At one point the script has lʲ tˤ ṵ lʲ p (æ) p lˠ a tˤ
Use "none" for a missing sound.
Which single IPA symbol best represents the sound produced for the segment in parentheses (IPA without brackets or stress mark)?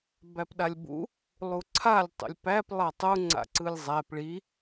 æ